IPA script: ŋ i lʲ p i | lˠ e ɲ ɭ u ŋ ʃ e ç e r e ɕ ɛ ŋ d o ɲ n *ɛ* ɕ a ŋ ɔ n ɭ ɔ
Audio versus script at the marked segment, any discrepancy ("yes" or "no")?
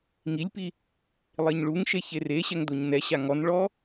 no